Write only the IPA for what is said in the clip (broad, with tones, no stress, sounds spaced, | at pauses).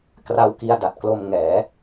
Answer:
k r a˦˥ w k i˧ a̯ d a˨˩ t̚ k l o˧ m ŋ ɛː˩˦